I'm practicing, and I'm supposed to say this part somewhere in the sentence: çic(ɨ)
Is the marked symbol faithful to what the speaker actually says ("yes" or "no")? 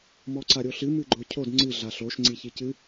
yes